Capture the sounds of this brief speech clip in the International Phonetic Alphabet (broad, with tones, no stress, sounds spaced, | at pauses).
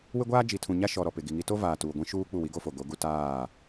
w ɪ˦ ɡʷ aː˦ d͡ʒ i˨ tʰ ũ˨ ɲ a˦ ʃ ɔ˨ ɾ ɔ˨ p ɪ˨ ɡ i˨ ŋ i˦ t o˦ v aː˨ t uː˨ ɡʷ ĩ˦ ʃ uː˦ k͡p u˦˨ w i˦ ɡ o˦ f o˨ ɡ o˨˦ ɡ u˦ t aː˦˨